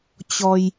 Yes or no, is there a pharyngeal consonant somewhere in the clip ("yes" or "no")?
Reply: no